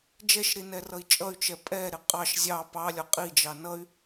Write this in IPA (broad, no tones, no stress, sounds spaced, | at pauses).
d͡ʒ ɛ ʃ ɾ i n ɛ r ʌ i̯ t͡ʃʼ ʌ y̯ t͡ʃ ɛ pʼ ɛ ɾ ɪ qʼ ɑ ʃ zʲ ɑ p ɑ lʲ ɒ qʼ i d͡ʒ ɑ n ʌ y̯